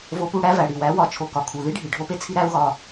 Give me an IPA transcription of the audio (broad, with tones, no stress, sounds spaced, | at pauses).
v o˧ p u˦˨ ɽ æ˦ v æ˨ ɽ i˨ w æ˨˦ w ɒ˧ t͡ʃʰ o˧ k ɒ˨ kʰ u˨ ð i˦ ɖʱ i˨ ɖʱ o˦ p e˦ t͡sʰ i˦ ɾ æ˦ u̯ ɣ ɒ˧